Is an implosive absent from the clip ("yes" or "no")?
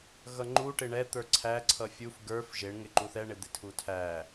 yes